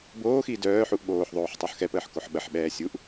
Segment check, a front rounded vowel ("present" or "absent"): present